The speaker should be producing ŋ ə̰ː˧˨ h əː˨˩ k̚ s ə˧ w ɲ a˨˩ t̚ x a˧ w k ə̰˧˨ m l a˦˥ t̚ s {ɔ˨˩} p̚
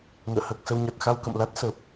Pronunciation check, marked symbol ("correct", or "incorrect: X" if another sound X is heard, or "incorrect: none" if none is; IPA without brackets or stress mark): incorrect: ə˨˩